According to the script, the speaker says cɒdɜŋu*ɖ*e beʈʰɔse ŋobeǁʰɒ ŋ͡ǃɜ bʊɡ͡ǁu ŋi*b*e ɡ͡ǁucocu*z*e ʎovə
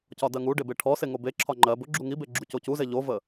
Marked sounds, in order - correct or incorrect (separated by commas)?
correct, correct, correct